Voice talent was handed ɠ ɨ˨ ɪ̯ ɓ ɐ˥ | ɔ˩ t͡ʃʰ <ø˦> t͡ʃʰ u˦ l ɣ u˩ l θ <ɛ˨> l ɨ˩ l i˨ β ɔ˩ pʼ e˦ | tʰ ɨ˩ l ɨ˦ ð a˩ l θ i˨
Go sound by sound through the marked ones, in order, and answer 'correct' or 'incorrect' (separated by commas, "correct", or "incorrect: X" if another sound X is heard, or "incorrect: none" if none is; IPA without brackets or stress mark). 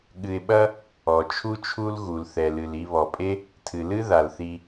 incorrect: u˦, incorrect: ɛ˩